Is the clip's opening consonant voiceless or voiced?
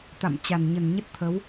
voiceless